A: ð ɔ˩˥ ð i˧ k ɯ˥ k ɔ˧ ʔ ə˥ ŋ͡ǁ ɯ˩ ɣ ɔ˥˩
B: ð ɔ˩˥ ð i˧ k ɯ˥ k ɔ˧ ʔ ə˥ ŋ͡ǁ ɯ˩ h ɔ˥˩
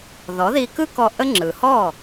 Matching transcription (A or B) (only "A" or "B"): B